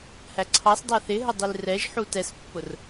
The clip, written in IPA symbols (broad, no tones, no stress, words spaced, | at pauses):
hæǀʰɑsdˤæ θɪ ɦədˤilrɛʒħu tɛspːʊr